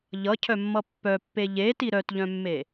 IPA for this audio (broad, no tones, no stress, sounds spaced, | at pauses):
ʎ ʌ cʰ œ mː ʌ pː œ pː e ʎ e t i ɾ œ t ʎ œ̃ mː e